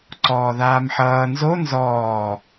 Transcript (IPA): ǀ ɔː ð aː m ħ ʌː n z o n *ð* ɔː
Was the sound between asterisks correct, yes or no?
no